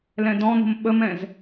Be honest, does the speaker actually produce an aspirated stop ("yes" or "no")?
no